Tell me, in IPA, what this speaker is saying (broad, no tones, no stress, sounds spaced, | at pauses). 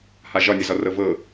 h a ʒ ɒ nʲ ə z ɒ r ɤ v ɤ